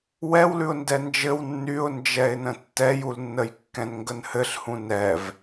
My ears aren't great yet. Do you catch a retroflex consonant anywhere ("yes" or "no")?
no